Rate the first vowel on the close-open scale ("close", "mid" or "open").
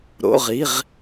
mid